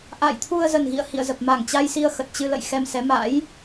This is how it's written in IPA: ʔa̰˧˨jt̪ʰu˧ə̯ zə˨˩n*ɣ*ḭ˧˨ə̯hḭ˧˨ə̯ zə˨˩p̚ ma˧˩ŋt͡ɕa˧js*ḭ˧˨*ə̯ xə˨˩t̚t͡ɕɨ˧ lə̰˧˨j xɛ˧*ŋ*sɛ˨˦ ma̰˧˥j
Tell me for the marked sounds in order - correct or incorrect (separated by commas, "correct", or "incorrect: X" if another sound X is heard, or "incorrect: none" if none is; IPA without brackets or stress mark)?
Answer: correct, incorrect: i˧, incorrect: m